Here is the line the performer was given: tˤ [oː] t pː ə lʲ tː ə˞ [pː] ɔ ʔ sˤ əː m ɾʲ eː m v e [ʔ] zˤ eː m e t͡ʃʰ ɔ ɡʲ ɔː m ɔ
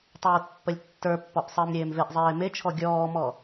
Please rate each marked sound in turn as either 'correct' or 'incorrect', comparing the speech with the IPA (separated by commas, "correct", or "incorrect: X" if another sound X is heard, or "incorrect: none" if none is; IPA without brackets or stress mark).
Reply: correct, correct, correct